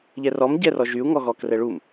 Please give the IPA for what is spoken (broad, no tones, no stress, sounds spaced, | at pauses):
ʎ ɛ r ɔ m ɟ ɛ r ɔ ʒ y u̯ ŋ ɔ ɣ ɔ k r ɛ ɭ u m